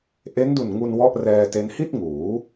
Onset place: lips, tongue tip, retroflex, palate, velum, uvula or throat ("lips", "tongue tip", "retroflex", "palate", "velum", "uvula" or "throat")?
throat